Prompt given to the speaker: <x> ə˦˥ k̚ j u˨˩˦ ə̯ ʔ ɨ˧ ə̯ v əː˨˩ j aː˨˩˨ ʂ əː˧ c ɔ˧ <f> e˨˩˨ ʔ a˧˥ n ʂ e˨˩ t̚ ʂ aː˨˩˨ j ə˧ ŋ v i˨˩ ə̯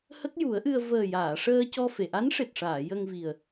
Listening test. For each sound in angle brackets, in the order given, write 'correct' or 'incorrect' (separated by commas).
incorrect, correct